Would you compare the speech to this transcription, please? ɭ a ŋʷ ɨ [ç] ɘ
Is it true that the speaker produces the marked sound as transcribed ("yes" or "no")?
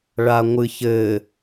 yes